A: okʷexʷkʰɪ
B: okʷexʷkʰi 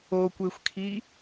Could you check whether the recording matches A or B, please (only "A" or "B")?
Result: B